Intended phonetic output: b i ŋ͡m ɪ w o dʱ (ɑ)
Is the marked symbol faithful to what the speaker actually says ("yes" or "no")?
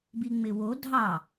yes